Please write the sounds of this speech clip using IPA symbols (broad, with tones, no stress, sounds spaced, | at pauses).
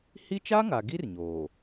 h i˦ t͡ʃ a˦ ŋ a˨ ɡ i˦ r ɲ oː˨